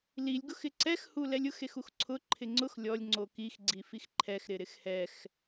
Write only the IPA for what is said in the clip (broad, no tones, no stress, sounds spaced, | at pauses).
l i lʲ ɡ ʊ x ɪ ǀ ɛ x h u l ɛ lʲ ʊ x e x u x ǀʰ ʊ ǃʰ ɪ ŋ͡ǀ ʊ x lʲ ɔ lʲ ŋ͡ǀ o k i x ɡ͡ǀ i f i x ǃʰ ɛ x ɾ ɪ ɾ ɪ x h ɛ x